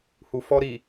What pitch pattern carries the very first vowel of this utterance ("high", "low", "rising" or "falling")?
low